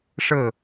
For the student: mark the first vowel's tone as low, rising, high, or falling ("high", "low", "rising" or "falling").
falling